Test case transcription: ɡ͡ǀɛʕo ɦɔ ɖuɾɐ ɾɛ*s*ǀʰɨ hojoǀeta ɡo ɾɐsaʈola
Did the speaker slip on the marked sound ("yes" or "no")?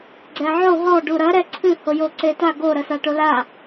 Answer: yes